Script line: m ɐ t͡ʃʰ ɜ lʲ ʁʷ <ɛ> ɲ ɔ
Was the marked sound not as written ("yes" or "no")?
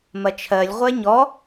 no